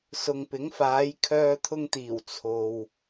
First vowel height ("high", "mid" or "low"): high